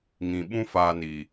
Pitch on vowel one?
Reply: low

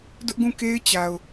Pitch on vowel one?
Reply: high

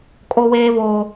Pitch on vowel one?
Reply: high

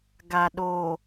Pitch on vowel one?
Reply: low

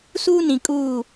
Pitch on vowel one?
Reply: high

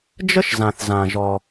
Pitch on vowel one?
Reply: high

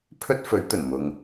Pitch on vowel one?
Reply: high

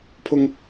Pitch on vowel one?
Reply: high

